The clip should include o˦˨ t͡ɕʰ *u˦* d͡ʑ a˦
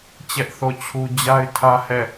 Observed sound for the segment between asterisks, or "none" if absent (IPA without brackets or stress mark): u˦